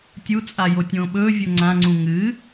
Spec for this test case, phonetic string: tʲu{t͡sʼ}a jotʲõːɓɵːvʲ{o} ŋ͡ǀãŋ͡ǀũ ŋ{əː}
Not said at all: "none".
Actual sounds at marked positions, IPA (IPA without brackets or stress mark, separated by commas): t͡sʼ, o, ɨː